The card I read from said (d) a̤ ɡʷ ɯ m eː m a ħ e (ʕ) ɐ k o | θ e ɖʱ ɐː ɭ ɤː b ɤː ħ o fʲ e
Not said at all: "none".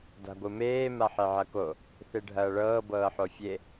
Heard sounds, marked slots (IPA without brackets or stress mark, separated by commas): d, ʕ